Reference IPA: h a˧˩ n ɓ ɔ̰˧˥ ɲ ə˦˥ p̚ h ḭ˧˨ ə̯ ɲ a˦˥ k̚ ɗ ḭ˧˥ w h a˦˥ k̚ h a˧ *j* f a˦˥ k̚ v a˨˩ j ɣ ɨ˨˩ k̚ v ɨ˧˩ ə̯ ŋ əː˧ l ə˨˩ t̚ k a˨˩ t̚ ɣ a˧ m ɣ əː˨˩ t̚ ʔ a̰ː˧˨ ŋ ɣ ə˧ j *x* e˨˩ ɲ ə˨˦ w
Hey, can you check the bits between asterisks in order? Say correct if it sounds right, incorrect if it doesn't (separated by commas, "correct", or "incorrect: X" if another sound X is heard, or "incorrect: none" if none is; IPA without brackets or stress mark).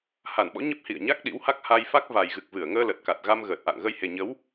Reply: correct, incorrect: h